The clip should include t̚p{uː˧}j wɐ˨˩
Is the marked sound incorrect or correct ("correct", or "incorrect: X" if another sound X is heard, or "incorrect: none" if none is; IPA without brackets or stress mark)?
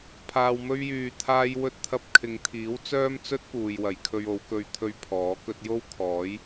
incorrect: uː˨